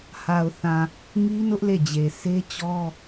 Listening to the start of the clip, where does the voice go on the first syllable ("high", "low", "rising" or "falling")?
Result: low